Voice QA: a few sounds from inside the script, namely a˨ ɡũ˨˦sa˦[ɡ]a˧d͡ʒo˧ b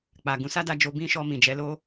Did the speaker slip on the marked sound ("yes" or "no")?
yes